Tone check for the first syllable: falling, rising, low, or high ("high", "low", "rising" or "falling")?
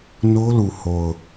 high